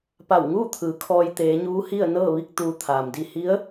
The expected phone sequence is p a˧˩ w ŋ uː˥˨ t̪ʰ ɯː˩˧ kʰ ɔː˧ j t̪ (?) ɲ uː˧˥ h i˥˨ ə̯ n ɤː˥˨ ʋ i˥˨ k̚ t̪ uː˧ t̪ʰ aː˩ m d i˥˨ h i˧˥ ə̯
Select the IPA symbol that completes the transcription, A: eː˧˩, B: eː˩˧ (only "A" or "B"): B